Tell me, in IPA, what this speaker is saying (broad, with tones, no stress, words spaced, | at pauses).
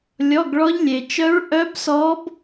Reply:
lʲɔ˧˥˧ɡɭɔ˦˥ʎlʲe˧t͡ʃœ˦˥ɹ ʔœ˦˥bsɔ˦˥b